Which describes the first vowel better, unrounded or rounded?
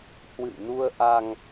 unrounded